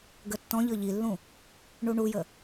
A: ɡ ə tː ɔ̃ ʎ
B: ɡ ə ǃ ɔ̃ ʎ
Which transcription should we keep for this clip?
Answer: A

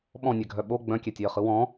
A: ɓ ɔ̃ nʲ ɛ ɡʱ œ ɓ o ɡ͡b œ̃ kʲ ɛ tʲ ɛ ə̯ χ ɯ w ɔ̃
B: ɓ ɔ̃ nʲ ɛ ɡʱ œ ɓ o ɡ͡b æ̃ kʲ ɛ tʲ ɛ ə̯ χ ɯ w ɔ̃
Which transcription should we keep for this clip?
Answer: A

